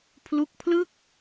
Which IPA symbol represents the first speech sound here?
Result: pʰ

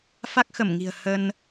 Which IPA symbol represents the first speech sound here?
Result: f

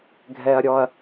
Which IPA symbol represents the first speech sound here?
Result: ɡʱ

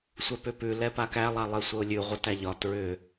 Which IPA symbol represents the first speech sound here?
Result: sʷ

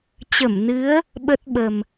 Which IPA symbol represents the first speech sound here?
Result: t͡ɕ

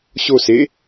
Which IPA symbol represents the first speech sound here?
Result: ɕ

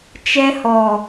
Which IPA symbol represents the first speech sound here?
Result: t͡ʃ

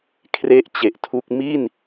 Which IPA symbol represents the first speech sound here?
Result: kʰ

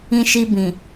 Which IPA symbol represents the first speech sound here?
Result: ĩ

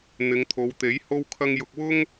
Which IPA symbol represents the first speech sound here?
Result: n̪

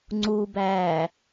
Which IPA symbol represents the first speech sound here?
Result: ŋ͡ǀ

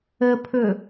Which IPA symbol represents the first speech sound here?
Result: ə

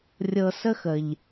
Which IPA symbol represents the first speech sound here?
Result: rʲ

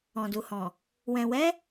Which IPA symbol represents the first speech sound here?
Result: ɔ̃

